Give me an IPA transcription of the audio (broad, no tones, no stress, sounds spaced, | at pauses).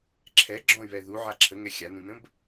ǁʰ ɛ ɡ͡ǁ ɔ̃ y̯ β ɛ ð u ʕ a ǁʰ ə ŋ ɛ xʲ a n ũ n ə̃ b